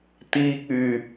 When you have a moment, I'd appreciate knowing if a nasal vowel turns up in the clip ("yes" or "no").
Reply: no